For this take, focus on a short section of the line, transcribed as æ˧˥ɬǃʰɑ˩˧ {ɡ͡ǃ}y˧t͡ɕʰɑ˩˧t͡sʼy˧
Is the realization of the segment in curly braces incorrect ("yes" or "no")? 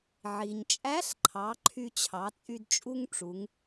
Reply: yes